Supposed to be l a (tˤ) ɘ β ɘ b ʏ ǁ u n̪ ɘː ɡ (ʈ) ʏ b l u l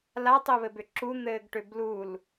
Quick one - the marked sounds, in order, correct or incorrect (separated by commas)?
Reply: correct, correct